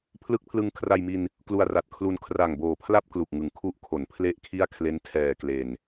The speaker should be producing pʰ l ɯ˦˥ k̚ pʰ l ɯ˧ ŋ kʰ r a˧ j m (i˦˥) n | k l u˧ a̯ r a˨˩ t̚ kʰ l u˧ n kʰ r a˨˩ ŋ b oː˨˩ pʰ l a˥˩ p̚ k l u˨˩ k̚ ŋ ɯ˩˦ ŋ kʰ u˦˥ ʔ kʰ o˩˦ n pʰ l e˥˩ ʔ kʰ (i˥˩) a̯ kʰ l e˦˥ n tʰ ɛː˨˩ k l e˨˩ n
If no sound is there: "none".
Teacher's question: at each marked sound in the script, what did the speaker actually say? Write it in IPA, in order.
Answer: i˧, i˥˩

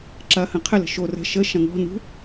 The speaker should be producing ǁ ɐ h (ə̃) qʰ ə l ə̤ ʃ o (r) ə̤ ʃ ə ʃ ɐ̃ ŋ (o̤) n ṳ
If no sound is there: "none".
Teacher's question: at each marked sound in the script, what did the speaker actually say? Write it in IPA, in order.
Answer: ə̃, r, ɔ̤

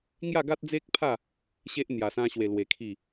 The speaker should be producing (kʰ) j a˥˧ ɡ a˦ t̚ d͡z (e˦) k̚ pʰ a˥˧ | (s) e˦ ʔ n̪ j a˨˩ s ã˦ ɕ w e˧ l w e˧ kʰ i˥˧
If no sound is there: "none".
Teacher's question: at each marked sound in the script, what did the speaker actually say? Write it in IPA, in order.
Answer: ŋ, e˦, ɕ

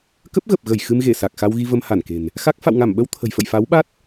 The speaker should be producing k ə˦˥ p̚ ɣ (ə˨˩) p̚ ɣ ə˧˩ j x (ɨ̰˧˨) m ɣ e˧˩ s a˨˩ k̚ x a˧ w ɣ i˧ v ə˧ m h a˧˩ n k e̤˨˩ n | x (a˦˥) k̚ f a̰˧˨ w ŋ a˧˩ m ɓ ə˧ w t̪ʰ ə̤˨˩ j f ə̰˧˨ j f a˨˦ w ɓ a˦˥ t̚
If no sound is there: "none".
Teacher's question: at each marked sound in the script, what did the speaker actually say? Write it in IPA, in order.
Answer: ə˨˩, ɨ˧, a˦˥

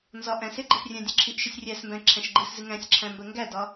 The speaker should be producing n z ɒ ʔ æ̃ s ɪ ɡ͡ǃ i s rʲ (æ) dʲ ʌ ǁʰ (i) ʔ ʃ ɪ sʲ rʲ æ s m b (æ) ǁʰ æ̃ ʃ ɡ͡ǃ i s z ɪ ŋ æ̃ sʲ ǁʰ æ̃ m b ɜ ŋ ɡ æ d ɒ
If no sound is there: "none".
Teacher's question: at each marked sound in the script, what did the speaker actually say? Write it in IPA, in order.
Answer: æ̃, i, æ̃

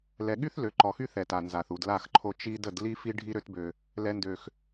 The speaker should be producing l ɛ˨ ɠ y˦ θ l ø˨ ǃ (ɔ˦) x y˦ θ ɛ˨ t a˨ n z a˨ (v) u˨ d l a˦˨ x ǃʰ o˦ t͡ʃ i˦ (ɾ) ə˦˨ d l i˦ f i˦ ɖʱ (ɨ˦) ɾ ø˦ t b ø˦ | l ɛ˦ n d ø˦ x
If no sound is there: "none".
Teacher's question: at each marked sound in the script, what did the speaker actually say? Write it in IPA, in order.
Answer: ɔ˨, θ, d, i˦

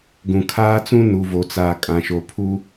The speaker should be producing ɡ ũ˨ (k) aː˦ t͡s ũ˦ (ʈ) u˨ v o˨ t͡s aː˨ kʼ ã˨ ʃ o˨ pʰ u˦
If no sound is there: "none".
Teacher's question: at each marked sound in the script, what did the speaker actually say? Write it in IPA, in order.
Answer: kʰ, n

